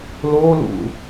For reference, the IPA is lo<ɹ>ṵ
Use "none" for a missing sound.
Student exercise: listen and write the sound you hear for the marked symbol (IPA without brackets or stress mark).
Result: l